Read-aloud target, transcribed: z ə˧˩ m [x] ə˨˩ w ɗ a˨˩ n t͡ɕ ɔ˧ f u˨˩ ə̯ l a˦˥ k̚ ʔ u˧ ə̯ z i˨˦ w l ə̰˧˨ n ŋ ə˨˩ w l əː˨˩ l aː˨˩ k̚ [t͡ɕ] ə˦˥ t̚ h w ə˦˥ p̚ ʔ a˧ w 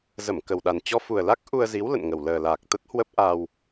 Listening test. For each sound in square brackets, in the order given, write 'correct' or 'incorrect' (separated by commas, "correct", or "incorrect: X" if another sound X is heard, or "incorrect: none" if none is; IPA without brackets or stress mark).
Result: incorrect: k, incorrect: t̪